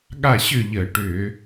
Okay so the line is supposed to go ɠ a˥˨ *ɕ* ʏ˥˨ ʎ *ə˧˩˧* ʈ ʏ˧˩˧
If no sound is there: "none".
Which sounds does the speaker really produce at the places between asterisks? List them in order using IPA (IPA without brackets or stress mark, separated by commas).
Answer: ɕ, ə˧˩˧